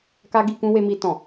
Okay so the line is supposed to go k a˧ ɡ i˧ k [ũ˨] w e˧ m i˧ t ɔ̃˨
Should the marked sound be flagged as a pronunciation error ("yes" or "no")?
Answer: yes